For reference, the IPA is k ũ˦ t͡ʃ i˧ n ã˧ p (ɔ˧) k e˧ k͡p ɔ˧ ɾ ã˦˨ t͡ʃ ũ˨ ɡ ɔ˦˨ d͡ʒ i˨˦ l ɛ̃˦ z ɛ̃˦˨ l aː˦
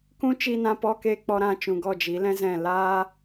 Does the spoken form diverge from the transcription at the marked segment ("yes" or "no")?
no